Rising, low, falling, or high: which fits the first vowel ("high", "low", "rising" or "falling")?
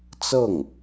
falling